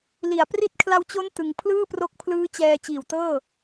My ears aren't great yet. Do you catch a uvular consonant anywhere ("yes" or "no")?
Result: no